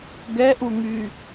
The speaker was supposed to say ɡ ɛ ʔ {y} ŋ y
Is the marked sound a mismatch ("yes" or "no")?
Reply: yes